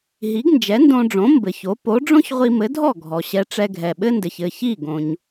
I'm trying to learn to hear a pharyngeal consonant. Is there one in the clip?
no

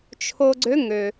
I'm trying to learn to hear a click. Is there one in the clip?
yes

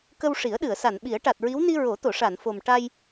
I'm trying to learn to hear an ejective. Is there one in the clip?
no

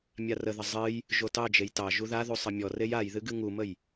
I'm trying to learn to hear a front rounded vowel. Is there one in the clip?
no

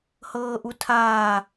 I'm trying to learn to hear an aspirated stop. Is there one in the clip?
yes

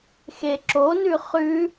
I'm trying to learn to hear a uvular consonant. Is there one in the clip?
yes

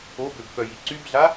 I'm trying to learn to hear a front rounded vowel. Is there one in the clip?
yes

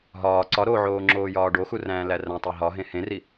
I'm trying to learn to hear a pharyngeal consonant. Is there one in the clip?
yes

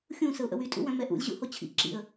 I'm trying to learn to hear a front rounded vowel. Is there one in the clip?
yes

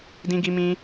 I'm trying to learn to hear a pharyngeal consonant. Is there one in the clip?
no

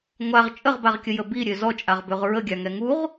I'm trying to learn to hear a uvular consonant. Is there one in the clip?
yes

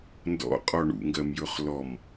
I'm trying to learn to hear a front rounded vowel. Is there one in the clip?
no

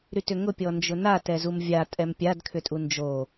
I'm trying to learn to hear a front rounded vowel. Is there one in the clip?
yes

